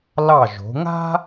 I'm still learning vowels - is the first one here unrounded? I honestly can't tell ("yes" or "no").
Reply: yes